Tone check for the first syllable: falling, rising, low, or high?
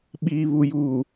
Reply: low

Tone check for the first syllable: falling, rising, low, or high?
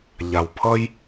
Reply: low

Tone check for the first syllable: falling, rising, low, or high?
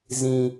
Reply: low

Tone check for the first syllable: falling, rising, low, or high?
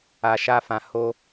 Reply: low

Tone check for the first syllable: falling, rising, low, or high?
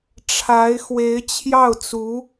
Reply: rising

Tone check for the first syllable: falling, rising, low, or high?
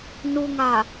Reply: low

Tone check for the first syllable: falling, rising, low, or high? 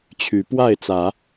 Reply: rising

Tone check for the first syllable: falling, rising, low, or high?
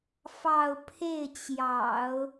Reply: falling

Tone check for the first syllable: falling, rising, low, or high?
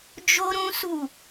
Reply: high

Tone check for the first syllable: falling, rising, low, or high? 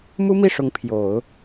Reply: high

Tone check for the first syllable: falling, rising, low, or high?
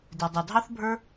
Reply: low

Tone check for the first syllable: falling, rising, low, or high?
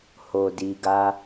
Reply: low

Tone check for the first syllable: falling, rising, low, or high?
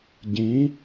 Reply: rising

